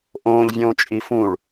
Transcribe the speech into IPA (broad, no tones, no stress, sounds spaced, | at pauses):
ʔ õː ʎ vʲ õː t͡ʃʼ i f ũ ɭ